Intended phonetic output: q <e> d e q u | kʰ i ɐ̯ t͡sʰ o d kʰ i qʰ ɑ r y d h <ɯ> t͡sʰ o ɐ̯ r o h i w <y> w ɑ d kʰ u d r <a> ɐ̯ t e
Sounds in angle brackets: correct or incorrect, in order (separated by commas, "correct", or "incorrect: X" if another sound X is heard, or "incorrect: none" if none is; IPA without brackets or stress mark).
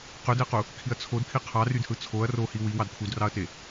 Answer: incorrect: ø, correct, incorrect: i, incorrect: ɑ